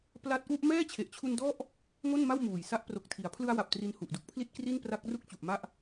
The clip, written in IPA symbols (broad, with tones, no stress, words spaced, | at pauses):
pla˦˥t̚ʔu˥˩ʔ mɛː˥˩t͡ɕʰe˨˩ʔt͡ɕʰu˧n dɔ˥˩ʔ | ŋo˥˩nma˥˩wmuː˨˩jsa˦˥ʔ pro˨˩k̚tʰi˩˦a̯pʰlɯ˧a̯wa˨˩p̚ tri˧nhu˨˩ʔdu˥˩k̚pʰli˥˩t̚ kri˥˩npra˦˥k̚ ru˥˩k̚ t͡ɕu˨˩ʔma˥˩ʔ